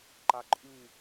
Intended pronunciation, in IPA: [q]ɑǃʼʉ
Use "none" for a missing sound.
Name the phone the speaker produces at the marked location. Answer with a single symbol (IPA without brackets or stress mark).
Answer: ǃ